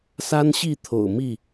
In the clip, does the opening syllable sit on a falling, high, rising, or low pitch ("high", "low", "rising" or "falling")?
high